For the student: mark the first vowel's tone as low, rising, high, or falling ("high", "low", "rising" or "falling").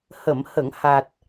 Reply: low